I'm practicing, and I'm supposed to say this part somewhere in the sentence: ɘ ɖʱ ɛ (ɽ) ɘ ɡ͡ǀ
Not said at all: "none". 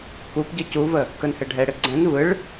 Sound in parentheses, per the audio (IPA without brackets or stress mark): ɽ